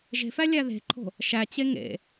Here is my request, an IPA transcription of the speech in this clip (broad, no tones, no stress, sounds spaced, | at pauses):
ʒ e̤ f æ lʲ æ ð e̤ ǃʰ o̤ | ʃ æ t͡ɕ e ŋ ḛ